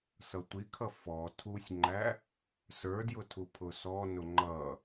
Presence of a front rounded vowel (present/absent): absent